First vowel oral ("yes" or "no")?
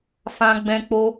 no